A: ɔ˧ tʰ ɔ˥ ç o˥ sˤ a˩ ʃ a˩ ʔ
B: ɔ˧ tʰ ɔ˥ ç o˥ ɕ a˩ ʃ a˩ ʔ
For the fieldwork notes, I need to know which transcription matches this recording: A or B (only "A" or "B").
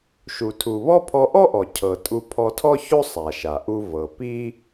A